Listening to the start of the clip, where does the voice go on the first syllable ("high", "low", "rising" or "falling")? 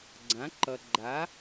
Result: rising